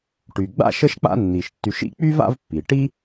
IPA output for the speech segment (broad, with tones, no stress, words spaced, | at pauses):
ʈy˩ɡ͡ba̰˥ʃə˦ʃk͡pa̰˦ nːi˩ʃtːy˨ʃḭ˥ k͡py˥va̰˦vpːi˩ʈi˥